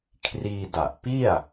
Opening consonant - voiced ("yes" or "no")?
no